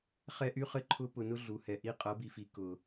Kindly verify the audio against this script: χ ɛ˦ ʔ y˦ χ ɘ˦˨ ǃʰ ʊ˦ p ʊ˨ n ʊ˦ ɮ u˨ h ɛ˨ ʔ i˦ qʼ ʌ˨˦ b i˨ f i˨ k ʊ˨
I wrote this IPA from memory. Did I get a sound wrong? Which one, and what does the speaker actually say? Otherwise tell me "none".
none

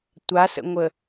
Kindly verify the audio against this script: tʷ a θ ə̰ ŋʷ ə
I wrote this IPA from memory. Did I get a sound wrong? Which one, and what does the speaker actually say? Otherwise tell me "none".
θ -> s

